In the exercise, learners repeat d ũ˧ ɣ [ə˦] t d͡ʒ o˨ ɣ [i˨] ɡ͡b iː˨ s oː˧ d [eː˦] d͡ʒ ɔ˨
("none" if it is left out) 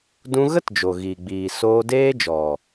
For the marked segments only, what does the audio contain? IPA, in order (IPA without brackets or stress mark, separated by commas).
ə˦, i˨, eː˦